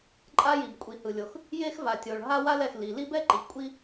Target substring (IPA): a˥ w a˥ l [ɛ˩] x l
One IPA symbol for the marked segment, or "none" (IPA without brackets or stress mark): ɛ˩